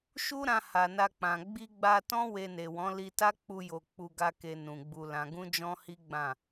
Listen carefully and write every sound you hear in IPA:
ʃ u˦ ɾ ã˧ h a˨ n a˧ k͡p ã˨ ɡ͡b i˧ ɡ͡b a˧ t ɔ̃˦ w e˧ n e˨ w ɔ̃˨˦ l i˧ t a˦ k͡p u˧ j o˨ k͡p u˧ ɡ a˦ k e˧ n ũ˨ ɡ͡b u˧ l ã˧ ɡ ũ˦ d͡ʒ ɔ̃˦ h i˦ ɡ͡b ã˦˨

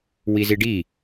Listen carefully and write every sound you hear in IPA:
w i z i ɖ i

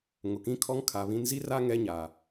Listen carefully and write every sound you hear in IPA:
ŋ ʊ˨ k ĩ˦ kʰ ɔ˦ ŋ kʰ a˨ β ĩ˦ n z i˦ r a˦ ŋ ɛ˦ ɲ a˨

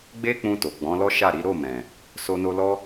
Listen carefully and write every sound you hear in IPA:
ɡ͡b e˦ k͡p ũ˧ t o˨ ɡ͡b ɔ̃˨˦ l ɔ˦ ʃ a˦˨ ɾ i˨˦ ɾ o˦˨ m ɛ̃˨ | s o˧ n o˧ l ɔ˦

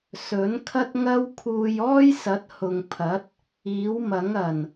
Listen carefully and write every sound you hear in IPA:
s ɵ˨˥ n kʰ ɐ˥ t̚ ŋ ɐ˥ w kʰ uː˧ j ɔː˥ j s ɐ˨˥ t̚ h ʊ˨ ŋ pʰ ɐ˨˥ t̚ | iː˨˥ w m ɐ˨˥ ŋ ɐ˨˩ n

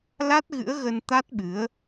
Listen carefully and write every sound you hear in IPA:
l a˦˥ t̚ ɣ ɨ̰˧˥ ə̯ ɣ ə˧ n t̪ a˦˥ t̚ ɓ ɨ˨˦ ə̯

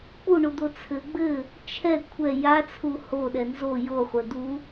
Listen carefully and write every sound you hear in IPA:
k͡p u ɳ u d̪ o t͡sʰ ɘ ɡ͡b ɘ | t͡ʃʰ ɛ kʷʰ ɛ j a t͡sʰ u h o ɗ ɛ n z o j o χʷ ɛ d̪ u

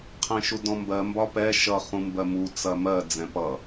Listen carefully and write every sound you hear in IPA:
qʰ ɛ̃ ʃ u d ɔ̃ m b ɜ m b ɒ p ɛ ʃ ʌ χ ũ m b ɜ m u t͡s ɐ m ɜ d͡z ɛ̃ p ʌ

